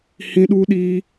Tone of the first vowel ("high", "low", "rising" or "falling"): high